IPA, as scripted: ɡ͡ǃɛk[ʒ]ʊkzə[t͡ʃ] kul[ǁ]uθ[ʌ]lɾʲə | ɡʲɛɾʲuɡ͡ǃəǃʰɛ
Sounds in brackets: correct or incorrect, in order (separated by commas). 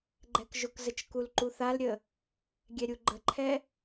correct, correct, incorrect, incorrect